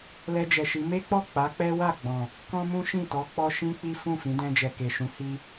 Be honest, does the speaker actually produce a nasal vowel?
yes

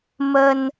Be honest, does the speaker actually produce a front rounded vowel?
no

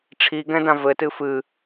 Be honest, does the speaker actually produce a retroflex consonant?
yes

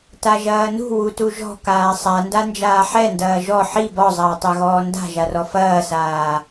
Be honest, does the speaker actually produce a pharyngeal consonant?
yes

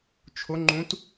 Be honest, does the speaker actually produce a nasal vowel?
yes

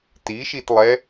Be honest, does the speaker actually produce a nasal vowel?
no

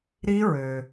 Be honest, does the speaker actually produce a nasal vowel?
no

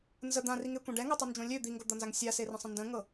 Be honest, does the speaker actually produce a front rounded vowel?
yes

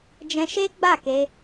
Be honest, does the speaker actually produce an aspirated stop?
no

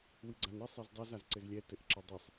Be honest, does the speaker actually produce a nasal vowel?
no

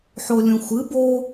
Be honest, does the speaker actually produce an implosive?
no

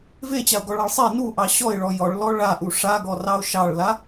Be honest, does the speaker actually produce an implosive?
no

